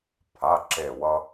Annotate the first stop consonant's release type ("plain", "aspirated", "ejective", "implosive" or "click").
aspirated